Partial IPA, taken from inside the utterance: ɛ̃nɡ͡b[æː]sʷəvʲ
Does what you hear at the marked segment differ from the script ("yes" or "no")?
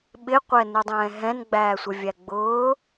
no